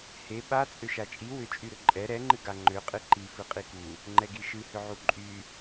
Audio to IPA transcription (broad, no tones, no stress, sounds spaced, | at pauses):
h e ɓ a t͡sʼ ʏ ʃ a t͡ʃʼ i w ʏ t͡ʃʼ y ɾ ʏ ǃʼ ɛ ɾ ɛ ŋ͡ǃ ɨ ɡ a ŋ͡ǃ ʏ qʼ ɨ ǃ i f ɨ qʼ i k u | ŋ͡ǃ ɛ ɡ i ʃ ɨ h ʏ ʕ u ǃʼ y